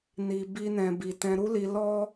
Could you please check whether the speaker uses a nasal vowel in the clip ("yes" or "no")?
yes